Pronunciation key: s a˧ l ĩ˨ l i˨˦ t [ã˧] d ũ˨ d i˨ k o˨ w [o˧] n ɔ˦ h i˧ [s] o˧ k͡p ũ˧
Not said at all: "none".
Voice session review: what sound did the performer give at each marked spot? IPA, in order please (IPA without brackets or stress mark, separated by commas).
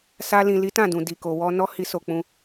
ã˦˨, ɔ˧, s